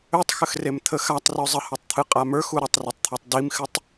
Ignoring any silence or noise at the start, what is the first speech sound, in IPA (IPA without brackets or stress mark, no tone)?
ø